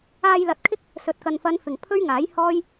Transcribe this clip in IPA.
aː˧ j l ɐ˨˥ t̚ kʰ ɪ˥ k̚ | s ɵ˨ t̚ k ɐ˨ n f ɐ˨˧ n f ɪ˨˩ ŋ pʰ ɵ˥ ɥ ŋ aː˨˥ j h ɔː˥ j

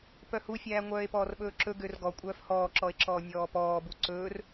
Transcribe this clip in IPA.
p œ h u fʲ æː ŋʷ œː e̯ p ɔː r ɓ ɵː ǁ ɵ ɡ ø r ɡ ɔ kʷʼ œː f h ɔː ǁ ɔ e̯ ǁ ɔː nʲ ɔː p ɔː b u ǀ ɵː r

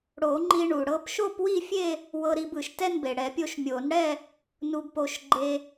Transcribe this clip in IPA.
ɽ o˨˩˦ ŋ͡ǃ i˧ ɳ u˩ ɽ ɤ˧ p ʃ o˥˧ p w i˥˧ fʲ e˥˧ | w ɤ˧ ɾ i˧ b ɯ˩ ʃ t ɛ˥˧ n b e˩ ɽ ɛ˨˩˦ pʲ o˧ ʃ mʲ o˨˩˦ n ɽ ɛ˥˧ | n u˧ b p o˧ ʃ ɡ͡ǃ e˧

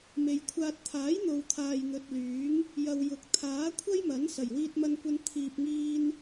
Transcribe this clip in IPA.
m e˨ j kʷʰ aː˧ t̚ t̪ʰ aː˨˥ j n̪ o˨ w t̪ʰ aː˨ j n̪ ɵ˨ t̚ l yː˨˥ ŋ | j ɐ˨ w j ʊ˨ k̚ t̪ʰ aː˨˥ kʷʰ ɐ˥ j m ɐ˨˥ n s ɐ˨˩ j w iː˧ t̚ m ɐ˧ n kʷ ɐ˧ n t̪ʰ iː˨ p̚ ŋ iː˧ n

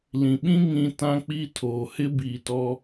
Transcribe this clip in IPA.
l ĩ˨ ɓ ĩ˦ ŋ ĩ˦ t ã˦ k͡p i˦ tʰ oː˨ h ɪ˦ b iː˨ t ɔ˦

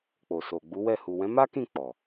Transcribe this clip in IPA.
k͡p o˨ s o˨ ɡ͡b u˨˦ w ɛ˦˨ h u˨ w ɛ̃˨˦ m a˦ k ĩ˦˨ k͡p ɔ˨

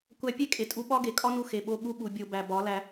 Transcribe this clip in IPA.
kʷ æ˧ pʲ e˦ kʼ e˨ tʼ u˧ ɓ ɒ˦ ɡ e˨ kʼ ɒ˦ n u˧ x e˨ ɓ o˧ ɠ u˦ ɓ u˨ bʲ o˧ b æ˨ b ɒ˨˦ l æ˧

